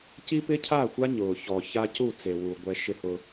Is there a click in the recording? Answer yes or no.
no